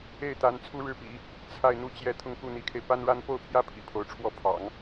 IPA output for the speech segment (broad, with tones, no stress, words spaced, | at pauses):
e˥˩ɪ̯t̪a˧˥n t͡sʰu˥ɻɻ̩˥˩pḭ˨˩˦ | t͡sʰa˥˧ɪ̯n̪u˥˧t͡ɕjɛ˥˧ t̪ʰʊ˥˧ŋku˥˩n̪i˧˥kʰe˧ɪ̯ pa˥nɻa˥n po˥˩ʊ̯pʰjä˥ pʰḭ˨˩pʰo˧˥ʊ̯ʈ͡ʂʰwɔ˥˩ pʰɑ̰˨˩˦ŋ